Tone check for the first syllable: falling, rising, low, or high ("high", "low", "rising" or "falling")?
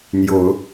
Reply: rising